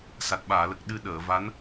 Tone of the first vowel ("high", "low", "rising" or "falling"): low